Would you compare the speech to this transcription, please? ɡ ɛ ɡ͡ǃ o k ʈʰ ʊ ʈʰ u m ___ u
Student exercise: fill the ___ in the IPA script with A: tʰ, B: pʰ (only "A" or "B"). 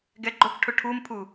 B